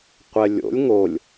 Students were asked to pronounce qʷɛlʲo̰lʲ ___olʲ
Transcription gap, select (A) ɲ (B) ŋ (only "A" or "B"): B